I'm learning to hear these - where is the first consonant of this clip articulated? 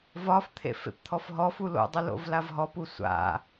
lips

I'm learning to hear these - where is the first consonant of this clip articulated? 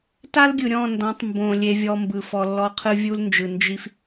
tongue tip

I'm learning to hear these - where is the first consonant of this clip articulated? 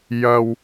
palate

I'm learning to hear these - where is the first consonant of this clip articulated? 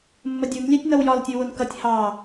lips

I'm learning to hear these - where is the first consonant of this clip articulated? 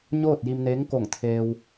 palate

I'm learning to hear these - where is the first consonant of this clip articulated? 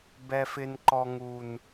lips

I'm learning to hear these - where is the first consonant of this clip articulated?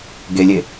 velum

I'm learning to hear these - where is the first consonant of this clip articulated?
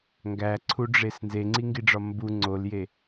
velum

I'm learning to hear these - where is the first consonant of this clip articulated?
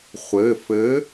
uvula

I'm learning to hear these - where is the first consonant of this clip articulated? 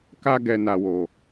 velum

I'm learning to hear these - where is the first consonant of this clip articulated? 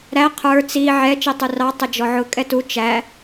tongue tip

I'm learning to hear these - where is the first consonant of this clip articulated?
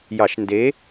palate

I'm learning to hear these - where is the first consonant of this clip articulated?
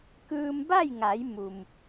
velum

